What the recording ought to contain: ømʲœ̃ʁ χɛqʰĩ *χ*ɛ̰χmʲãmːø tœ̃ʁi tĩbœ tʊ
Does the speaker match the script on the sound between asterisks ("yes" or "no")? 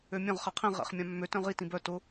no